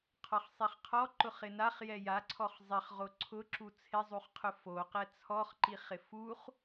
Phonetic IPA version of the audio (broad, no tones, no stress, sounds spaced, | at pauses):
qʰ ɔ χ sˤ i χ qʰ ɔ ǃ ʊ χ ɪ n a χ j ɛ j a ǀʰ ɔ χ zˤ ɪ χ ʁ o ǀʰ ʊ ǁ u t͡sʰ ɪ zˤ u χ qʰ ʊ f o q ɛ t͡sʰ ɔ χ ǃ i χ ɪ f u χ